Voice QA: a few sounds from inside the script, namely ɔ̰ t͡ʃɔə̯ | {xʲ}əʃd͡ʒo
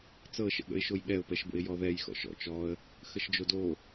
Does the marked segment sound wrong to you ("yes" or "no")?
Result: yes